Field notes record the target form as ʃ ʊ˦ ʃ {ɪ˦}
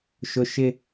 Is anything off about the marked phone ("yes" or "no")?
no